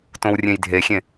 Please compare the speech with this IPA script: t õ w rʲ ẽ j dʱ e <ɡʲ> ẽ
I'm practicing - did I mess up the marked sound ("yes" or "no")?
yes